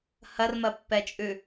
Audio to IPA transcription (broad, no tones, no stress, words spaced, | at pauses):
hɐrmɐpːɛt͡ʃʼʉ